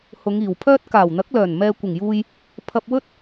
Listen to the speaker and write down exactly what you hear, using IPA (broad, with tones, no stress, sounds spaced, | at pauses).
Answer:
h ʊ˨˧ ŋ iː˨˩ w pʰ œː˥ t̚ k aː˨˩ w n̪ ɐ˨˥ k̚ l œː˨˩ n m ɛː˨ kʷ ɪ˨˩ ŋ j uː˧ j | pʰ ɐ˧ p̚ w ɵ˥ t̚